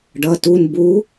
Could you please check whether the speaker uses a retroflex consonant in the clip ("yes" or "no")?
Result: yes